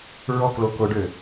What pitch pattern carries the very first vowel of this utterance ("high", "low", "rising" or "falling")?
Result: high